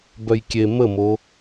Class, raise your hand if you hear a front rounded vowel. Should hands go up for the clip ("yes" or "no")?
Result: yes